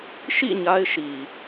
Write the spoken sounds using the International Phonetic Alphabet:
ʃ ḭ˦˨ ɲ a˦ ɪ̯ ʃ i˨

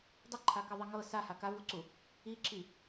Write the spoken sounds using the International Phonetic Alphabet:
dˤ ə ǃʰ a k ɪ ðˤ i ŋ ɤ s a h a k a v u ǀ u | i ǁ i

